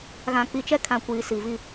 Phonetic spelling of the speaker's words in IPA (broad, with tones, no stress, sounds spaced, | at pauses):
ɣ ã˨ k͡p i˨ t͡ʃ ɛ˦ kʰ ã˨ kʷ iː˨ s i˨ v i˦˨